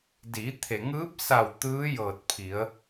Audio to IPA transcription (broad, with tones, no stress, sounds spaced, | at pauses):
d iː˩˧ t̪ʰ e˩ ŋ ɯː˧˥ p̚ s a˧˩ w t̪ ɯː˧˥ j ɤː˧˩ t̚ pʰ i˩˧ ə̯